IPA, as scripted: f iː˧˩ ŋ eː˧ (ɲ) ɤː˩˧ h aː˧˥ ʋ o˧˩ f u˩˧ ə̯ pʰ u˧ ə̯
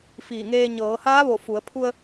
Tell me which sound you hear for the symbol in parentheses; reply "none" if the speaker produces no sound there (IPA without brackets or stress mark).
ɲ